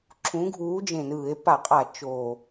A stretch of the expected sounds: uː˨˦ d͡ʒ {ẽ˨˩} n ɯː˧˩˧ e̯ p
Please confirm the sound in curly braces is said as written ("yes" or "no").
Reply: yes